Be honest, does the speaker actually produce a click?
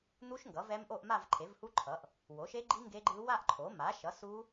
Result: yes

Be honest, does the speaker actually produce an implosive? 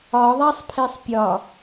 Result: no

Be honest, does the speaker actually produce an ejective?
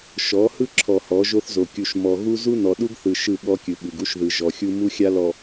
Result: no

